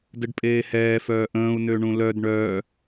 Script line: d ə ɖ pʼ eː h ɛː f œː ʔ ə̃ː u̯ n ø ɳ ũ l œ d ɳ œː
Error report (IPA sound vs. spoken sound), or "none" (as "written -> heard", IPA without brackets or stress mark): none